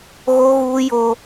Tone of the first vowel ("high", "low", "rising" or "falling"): high